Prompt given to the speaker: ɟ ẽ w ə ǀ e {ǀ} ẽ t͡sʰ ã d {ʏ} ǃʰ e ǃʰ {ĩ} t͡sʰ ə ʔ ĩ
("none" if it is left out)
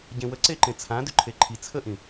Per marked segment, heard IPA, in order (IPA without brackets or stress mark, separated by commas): ǃ, ʏ, i